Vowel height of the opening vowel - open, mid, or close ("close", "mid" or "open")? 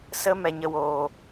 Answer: mid